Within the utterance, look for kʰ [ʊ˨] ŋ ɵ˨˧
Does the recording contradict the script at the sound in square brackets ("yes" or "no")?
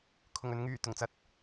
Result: yes